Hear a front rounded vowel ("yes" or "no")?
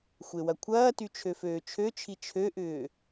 yes